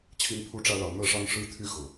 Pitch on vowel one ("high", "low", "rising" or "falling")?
high